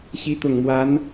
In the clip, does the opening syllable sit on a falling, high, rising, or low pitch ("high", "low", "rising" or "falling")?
rising